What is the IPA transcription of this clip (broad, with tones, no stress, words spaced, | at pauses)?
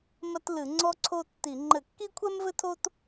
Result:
mɐ˦tlɨ˧˩˧ ŋ͡ǀɔ˦ǀʰo˦tːi˧˩˧ ŋ͡ǃɘ˧˩˧kːi˦kʷʰɛ˦m vɘ˦tʰo˦t